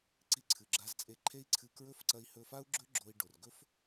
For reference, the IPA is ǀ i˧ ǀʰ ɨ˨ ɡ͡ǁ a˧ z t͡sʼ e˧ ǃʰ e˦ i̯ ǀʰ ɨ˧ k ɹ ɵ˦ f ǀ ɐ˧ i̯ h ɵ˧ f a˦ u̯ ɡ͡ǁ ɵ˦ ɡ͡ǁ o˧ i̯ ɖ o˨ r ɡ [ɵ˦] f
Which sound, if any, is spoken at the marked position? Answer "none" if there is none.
ɵ˦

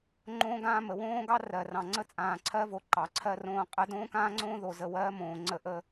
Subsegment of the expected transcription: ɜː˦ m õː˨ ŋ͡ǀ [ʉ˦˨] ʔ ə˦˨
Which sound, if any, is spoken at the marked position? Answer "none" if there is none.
ə˦˨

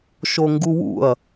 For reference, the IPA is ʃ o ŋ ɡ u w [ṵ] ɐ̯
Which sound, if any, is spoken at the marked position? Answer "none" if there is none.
ṵ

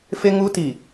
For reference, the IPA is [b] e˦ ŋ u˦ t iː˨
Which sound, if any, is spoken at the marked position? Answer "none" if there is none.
f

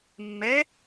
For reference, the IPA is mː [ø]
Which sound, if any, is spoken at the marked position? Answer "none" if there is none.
ɛ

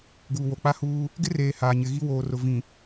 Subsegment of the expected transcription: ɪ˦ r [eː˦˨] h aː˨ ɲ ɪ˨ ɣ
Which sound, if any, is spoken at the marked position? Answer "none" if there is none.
eː˨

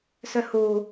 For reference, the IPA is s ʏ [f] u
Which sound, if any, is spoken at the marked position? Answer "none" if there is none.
h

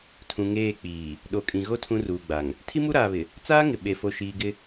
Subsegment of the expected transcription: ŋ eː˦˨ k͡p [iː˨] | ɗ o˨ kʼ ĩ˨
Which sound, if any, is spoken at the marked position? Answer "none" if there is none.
iː˨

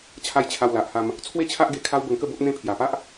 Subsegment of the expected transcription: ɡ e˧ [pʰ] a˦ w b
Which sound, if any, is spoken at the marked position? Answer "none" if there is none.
kʰ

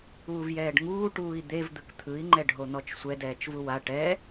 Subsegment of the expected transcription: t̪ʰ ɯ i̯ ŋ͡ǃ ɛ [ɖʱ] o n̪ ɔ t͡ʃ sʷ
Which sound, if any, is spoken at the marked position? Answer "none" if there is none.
ɖʱ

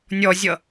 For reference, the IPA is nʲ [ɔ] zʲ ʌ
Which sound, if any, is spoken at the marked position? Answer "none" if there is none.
ɔ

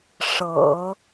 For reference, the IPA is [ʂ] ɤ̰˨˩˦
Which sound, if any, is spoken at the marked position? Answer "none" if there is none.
ʂ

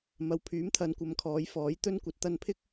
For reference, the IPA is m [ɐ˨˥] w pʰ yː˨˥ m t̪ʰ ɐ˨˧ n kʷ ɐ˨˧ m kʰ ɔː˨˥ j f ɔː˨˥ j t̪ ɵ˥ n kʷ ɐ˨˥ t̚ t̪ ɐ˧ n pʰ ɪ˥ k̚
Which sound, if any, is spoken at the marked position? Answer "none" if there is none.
ɐ˨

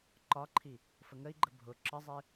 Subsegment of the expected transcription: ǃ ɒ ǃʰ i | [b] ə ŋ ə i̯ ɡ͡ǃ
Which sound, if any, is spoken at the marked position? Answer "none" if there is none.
f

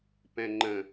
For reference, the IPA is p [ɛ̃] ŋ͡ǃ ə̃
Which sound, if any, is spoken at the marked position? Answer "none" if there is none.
ɛ̃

